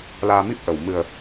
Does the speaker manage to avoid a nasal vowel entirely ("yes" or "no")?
yes